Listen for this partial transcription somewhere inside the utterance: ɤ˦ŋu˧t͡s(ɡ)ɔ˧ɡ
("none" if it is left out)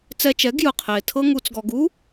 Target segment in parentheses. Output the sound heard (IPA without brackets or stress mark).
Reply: ɡ